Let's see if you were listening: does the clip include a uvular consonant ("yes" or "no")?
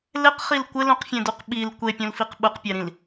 yes